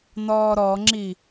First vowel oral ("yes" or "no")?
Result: yes